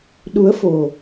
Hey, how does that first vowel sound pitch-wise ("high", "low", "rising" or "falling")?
rising